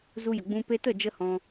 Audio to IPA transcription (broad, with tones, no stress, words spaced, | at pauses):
zu˧jə˨ɡ͡bũ˧ pe˧tə˦˨d͡ʒə˧ hɔ̃˧